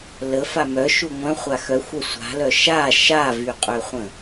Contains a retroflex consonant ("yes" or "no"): no